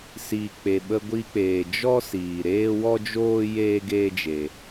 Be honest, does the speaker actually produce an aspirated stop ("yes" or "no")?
no